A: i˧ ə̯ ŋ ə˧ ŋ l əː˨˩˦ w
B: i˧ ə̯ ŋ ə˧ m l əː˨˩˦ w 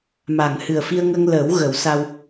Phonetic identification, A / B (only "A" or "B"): A